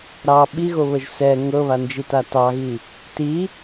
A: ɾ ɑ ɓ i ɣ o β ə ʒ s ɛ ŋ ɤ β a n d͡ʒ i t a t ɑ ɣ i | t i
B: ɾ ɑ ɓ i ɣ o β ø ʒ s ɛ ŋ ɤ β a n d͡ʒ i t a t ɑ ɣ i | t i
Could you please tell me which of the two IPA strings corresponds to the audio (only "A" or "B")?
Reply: A